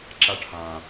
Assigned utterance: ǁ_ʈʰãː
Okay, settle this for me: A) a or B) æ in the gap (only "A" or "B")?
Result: A